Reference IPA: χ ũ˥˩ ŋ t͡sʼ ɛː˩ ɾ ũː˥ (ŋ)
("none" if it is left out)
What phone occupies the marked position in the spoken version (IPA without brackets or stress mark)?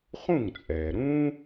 none